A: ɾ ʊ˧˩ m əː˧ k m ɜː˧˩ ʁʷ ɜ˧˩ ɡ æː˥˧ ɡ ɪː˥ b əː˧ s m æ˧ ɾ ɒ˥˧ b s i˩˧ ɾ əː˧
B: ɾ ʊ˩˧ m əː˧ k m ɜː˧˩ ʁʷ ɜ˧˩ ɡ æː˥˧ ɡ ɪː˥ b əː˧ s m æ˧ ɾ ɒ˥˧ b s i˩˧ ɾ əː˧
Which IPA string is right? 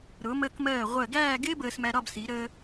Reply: B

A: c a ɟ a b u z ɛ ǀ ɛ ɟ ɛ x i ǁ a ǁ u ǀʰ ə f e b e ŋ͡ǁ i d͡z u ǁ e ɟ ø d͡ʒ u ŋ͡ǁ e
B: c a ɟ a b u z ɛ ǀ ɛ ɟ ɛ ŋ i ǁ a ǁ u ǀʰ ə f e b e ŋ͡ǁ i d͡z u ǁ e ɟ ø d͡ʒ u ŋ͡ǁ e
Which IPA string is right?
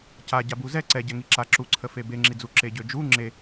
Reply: B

